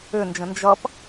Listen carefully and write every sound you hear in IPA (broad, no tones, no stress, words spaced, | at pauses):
ʏnd͡ʒə̃ nd͡ʒʌp